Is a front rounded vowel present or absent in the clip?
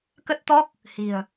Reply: absent